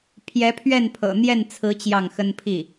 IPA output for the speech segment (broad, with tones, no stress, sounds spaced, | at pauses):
pʰ j ɛ˧˥ pʰ ɥ ɛ˥˩ n pʰ ɤ̰˨˩ n̪ j ɛ˥˩ n t͡sʰ ɹ̩˧˥ t͡ɕ j ɑ˥˩ ŋ x ə˥ n pʰ i˥˩